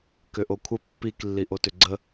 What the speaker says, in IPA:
k ʏ ʔ o kʷʰ ə pː i k lː i ʔ o t ʏ ɡ͡ǀ ə

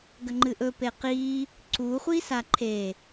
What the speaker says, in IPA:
ɡ ɐ ŋ͡ǃ ɨ ʔ ɵ p e q i | ǀ u χʷ i s a ǃʰ e

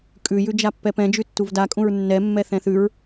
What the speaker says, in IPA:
kʼ ʉ j ʉ d͡ʒ a pː ɛ p ɛ̃ d͡ʒ ʉ tː u v d a kʼ ũ ɹ nː ɛ mː ɛ θ ɛ̃ θ ʉ ɹ

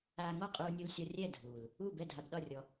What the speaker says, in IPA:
aː˧ ŋ ɔ˥˨ qʼ uː˧ nʲ u˧ l sʲ ɒ˧ rʲ ɛ˥˨ dʱ uː˨˩ l | u˥˨ b ɛ˥˨ dʱ a˧ b ɗ ɒ˥˨ rʲ ɔ˧

